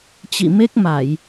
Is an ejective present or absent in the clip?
absent